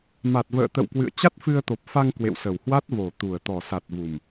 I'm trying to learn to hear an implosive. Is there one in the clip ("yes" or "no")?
no